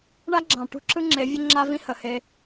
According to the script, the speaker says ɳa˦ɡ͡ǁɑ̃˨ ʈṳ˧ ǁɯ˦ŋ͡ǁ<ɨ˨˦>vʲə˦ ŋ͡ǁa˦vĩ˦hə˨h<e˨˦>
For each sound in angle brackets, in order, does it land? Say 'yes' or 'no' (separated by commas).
no, no